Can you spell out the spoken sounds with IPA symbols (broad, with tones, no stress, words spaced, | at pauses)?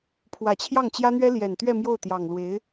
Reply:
pʰwä˨˩t͡ɕʰjɑ˥˩ŋt͡ɕjä˥n̪ɥɛ˥ ljɛ˨˩nt̪ɥɛ˥˧ mjo˥˩ʊ̯t̪jɑ˨˩ŋlwe˧˥ɪ̯